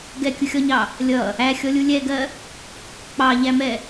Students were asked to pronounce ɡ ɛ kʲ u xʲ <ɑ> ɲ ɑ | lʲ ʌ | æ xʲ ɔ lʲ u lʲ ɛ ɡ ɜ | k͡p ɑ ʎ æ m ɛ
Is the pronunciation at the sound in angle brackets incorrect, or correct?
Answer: incorrect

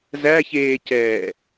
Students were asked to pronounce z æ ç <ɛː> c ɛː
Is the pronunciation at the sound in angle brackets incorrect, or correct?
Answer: incorrect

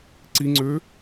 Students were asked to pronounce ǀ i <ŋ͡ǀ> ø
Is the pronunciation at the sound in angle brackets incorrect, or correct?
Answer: correct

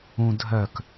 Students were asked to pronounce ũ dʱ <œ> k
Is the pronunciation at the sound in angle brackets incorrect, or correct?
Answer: correct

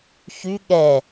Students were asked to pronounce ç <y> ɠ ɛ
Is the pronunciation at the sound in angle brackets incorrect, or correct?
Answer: correct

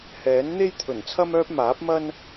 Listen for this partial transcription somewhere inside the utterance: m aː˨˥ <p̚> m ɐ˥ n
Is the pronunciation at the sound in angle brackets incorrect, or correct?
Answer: correct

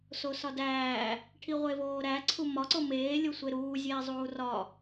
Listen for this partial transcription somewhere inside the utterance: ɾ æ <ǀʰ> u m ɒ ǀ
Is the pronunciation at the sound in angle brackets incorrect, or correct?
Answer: correct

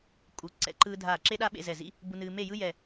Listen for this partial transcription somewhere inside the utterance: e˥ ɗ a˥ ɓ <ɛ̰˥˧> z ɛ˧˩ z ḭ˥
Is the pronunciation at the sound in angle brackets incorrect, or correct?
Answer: incorrect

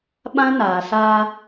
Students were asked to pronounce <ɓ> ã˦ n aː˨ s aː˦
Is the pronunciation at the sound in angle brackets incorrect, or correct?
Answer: correct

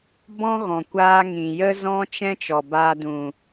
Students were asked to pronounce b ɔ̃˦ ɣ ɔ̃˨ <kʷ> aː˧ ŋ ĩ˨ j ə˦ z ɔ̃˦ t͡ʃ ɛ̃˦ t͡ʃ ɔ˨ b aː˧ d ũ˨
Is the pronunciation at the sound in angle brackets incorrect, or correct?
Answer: correct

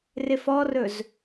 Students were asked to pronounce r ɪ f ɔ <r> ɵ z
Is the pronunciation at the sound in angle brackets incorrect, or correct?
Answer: correct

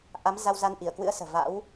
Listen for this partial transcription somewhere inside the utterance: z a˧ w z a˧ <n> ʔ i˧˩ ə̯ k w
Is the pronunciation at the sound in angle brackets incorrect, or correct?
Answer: correct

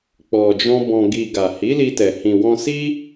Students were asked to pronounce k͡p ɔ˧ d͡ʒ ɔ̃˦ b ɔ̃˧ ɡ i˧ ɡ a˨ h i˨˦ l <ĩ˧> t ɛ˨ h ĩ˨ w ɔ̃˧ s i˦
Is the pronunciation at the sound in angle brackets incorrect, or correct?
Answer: incorrect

